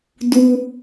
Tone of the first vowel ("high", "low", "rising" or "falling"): high